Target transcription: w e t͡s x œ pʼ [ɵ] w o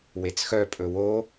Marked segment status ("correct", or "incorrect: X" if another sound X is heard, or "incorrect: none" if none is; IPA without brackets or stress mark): correct